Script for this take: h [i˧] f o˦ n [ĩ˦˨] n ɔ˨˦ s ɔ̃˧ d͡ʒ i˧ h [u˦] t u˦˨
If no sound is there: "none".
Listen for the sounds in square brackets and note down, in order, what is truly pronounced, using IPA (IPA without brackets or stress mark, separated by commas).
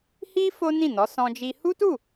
i˦, ĩ˦˨, u˦